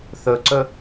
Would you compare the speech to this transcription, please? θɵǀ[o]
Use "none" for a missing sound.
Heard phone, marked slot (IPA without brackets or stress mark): ɵ